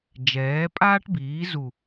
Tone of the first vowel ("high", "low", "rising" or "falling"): rising